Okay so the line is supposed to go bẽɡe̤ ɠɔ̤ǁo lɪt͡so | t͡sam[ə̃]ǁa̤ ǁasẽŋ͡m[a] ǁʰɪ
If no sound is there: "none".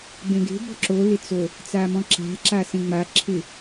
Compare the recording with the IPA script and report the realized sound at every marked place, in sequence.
ɔ̃, a

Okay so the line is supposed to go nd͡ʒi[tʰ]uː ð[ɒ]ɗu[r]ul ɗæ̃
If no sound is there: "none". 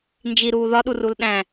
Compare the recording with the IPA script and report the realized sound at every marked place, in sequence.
ɾ, ɒ, r

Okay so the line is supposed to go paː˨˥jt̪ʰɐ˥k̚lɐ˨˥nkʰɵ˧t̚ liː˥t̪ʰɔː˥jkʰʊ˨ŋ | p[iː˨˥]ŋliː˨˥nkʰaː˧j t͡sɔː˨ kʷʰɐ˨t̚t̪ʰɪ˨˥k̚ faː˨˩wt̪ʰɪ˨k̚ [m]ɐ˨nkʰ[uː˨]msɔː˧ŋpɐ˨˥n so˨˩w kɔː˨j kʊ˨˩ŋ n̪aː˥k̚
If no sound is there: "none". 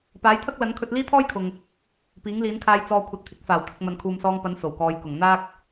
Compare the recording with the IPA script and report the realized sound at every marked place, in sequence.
iː˨˥, m, uː˨

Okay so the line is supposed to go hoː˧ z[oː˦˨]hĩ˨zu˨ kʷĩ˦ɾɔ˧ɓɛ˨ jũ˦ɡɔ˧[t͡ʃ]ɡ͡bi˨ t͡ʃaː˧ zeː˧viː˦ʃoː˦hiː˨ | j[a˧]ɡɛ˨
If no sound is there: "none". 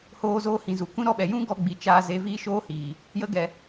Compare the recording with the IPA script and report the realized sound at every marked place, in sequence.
oː˧, none, ə˧

